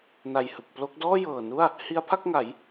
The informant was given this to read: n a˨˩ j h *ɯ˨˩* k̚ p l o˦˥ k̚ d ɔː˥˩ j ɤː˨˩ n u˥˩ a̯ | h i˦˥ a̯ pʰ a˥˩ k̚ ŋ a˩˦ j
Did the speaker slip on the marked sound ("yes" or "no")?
no